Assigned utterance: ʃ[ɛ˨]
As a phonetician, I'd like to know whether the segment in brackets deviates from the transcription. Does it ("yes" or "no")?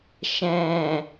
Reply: yes